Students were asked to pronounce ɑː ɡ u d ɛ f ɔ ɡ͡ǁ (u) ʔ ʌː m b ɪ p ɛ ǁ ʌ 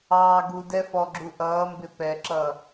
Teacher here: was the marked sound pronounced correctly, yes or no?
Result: yes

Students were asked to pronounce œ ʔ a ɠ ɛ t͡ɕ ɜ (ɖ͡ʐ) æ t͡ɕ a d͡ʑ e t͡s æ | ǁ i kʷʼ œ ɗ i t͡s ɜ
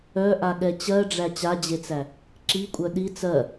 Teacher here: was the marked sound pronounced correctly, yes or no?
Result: yes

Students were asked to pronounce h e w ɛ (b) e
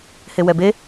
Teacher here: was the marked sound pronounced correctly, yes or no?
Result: yes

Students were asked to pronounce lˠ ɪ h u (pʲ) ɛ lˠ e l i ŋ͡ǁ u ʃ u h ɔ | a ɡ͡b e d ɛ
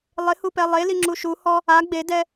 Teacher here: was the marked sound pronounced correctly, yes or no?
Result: no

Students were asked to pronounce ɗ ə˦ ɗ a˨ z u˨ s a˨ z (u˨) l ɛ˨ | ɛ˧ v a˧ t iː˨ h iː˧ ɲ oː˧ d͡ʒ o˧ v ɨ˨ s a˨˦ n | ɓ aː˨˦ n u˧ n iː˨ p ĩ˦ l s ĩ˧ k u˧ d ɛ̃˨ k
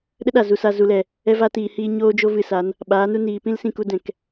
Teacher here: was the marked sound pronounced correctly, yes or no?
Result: yes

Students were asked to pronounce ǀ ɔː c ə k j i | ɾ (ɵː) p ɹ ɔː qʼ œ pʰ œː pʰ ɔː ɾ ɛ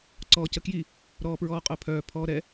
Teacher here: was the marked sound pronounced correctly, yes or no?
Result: no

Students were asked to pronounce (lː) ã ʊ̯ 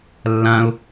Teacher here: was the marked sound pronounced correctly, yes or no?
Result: yes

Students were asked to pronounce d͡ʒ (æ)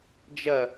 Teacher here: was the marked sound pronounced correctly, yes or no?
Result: no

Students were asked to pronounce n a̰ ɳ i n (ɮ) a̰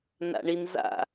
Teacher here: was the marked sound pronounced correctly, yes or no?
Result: no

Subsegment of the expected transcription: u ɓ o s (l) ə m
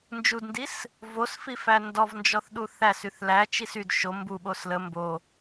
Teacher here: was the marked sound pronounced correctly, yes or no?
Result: yes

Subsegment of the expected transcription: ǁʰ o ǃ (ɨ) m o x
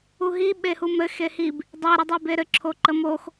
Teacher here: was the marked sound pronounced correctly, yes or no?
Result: no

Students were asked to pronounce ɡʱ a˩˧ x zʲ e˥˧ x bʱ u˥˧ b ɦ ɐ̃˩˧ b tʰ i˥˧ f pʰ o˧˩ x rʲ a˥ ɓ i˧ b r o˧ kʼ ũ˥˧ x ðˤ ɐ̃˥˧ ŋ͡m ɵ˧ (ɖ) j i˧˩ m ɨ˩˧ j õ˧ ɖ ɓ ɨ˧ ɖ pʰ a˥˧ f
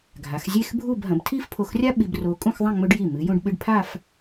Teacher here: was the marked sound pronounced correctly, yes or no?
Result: yes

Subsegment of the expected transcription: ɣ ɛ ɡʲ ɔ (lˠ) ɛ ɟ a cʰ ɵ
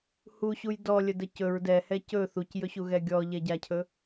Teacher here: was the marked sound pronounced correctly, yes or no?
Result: no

